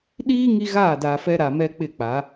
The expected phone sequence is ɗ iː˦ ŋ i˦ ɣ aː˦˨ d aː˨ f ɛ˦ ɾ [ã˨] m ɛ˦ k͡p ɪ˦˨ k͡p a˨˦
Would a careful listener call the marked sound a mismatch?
yes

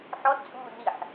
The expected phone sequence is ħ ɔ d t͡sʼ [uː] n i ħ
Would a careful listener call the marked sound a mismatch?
no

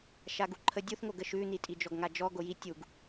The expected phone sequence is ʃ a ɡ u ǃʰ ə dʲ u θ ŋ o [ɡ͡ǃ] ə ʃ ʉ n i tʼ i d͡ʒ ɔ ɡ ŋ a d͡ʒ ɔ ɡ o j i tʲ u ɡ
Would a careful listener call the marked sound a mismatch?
yes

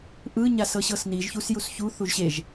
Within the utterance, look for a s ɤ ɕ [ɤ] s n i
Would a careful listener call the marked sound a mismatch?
no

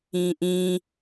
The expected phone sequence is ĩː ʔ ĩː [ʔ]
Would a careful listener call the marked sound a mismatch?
yes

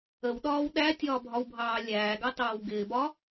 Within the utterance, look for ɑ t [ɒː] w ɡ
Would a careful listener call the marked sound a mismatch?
yes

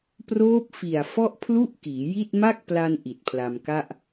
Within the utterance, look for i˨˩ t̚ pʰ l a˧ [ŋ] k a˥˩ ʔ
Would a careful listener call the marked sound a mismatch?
yes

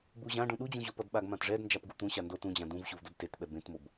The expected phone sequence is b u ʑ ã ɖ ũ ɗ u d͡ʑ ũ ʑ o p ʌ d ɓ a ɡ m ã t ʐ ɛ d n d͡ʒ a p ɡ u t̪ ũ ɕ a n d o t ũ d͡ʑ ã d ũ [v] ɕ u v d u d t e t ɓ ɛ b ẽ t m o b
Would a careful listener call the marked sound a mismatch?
no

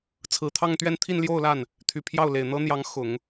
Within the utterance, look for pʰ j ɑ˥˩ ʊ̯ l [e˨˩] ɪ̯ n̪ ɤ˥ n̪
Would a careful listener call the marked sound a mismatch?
no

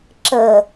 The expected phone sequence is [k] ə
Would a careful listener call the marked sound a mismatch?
yes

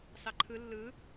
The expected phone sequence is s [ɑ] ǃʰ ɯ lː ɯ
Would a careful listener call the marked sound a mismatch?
no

